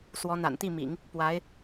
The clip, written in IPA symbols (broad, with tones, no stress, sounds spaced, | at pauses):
s w ɔ˧˥ n̪ a̰˨˩ n t̪ i˥˩ m ḭ˨˩˦ ŋ | p w a˧˥ ɪ̯